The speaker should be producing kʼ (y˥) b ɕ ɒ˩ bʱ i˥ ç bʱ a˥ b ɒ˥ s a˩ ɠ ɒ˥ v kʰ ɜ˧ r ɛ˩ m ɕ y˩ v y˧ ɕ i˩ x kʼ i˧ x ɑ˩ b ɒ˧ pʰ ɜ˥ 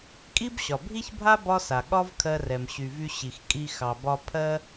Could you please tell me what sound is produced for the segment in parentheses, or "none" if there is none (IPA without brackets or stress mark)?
i˥